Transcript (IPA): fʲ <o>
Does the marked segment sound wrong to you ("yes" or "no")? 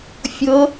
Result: yes